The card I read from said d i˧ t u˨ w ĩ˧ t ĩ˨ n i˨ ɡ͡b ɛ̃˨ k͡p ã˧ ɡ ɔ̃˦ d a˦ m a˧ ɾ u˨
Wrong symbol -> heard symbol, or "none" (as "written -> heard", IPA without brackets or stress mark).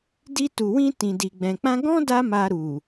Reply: n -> d